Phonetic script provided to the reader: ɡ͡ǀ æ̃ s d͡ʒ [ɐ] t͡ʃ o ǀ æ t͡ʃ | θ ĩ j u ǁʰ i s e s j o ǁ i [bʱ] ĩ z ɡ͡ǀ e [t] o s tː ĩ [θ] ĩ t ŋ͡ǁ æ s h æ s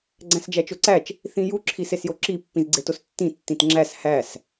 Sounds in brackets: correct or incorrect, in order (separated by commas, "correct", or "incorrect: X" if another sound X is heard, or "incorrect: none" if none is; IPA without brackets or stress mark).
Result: incorrect: æ, incorrect: pː, correct, incorrect: tː